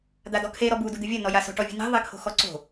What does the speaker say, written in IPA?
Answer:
d̪ a d ɔ kʰ e ɾ ɔ b u d u d̪ ɨ vʲ ɐ n ɔ j a s o̤ ʈ ɔ vʲ ṳ n i̤ ðˤ i kʰ o̤ x ɔ ǀ o̤

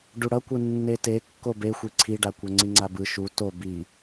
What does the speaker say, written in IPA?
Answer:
ɖ u ɽ ʌ kʷ ɯ nː e t e kː o b e xʷ i ǀʰ i ɖ a kʷ ɛ ŋ͡ǀ i ŋ͡ǀ a b ɯ ʃ u t o b i

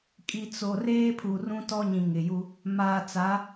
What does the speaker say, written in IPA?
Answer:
kʼ i˨ t͡s o˨ r eː˦ pʰ u˨ r ũ˦ t ɔ˦ ɲ ĩ˨ ŋ ɪ˨ j u˦ | m aː˨ t͡s a˨˦

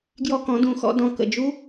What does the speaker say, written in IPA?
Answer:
ɡ j ɔ˥ k ɔ̃˧˥ d ũ˧˥ x ɔ̰˧˥ d ɔ̃˧ k ə̰˧ d͡ʒ u˧˥

